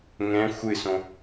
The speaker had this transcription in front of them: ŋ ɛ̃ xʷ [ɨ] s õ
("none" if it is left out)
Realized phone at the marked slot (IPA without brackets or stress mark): ɨ